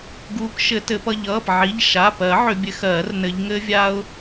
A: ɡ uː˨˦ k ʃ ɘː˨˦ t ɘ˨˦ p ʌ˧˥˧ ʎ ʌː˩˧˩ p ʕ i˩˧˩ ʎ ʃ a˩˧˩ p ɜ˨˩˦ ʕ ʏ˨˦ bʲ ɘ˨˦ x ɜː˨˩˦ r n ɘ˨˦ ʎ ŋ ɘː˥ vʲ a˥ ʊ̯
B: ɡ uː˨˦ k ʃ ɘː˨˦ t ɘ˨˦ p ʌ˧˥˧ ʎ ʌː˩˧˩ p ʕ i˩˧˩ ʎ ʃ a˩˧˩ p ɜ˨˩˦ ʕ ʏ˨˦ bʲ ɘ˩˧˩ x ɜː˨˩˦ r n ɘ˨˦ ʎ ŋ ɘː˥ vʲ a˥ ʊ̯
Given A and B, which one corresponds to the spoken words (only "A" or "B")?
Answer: A